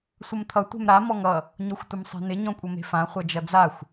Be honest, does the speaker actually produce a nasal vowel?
yes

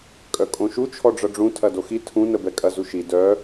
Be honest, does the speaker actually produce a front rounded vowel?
yes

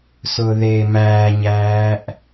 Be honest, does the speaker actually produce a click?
no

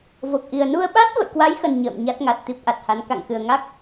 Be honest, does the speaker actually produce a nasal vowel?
no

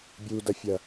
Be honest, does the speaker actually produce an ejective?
no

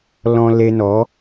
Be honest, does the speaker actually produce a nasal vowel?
yes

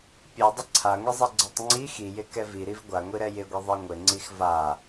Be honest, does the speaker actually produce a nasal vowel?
no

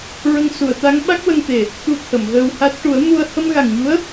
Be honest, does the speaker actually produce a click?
no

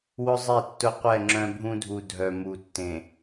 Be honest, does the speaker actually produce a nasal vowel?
yes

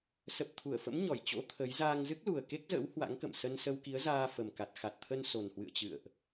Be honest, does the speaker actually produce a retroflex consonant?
no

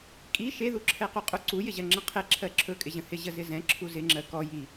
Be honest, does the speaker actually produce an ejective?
yes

